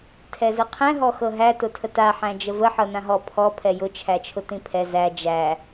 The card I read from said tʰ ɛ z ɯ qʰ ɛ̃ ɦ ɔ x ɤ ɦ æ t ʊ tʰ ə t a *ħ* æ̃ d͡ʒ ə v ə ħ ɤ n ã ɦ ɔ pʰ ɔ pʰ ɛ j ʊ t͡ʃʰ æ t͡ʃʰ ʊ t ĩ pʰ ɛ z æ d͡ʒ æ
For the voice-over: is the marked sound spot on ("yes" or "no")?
yes